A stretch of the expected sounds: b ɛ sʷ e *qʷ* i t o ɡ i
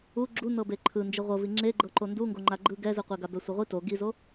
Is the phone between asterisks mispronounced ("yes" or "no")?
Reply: yes